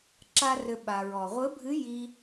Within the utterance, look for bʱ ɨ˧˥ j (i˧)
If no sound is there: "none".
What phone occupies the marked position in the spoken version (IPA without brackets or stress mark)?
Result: i˧